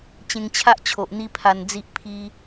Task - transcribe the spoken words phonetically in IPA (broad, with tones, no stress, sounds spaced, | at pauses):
t͡ɕ ẽ˧ ŋ t͡ɕʰ a˦ ʔ t͡ɕʰ o˨ ʔ n̪ i˦ pʰ a˧ n d͡z i˦ ʔ pʰ i˧